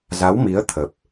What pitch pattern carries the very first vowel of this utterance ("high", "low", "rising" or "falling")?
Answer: rising